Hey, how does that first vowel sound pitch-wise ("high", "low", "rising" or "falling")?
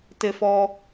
high